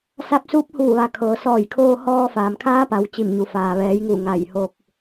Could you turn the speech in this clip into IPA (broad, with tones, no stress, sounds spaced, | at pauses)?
s a˧ p̚ s uː˧˥ p̚ h uː˧˩ ʋ a˩˧ kʰ ɤː˩ s ɔː˧˩ j kʰ oː˧ h ɔː˧ f aː˩ m kʰ aː˧˥ p a˩˧ w t͡ɕ i˧˩ m ɲ u˩ f aː˩ ʋ ɛː˩˧ j ŋ u˧˩ ŋ a˧˩ j h o˧ k̚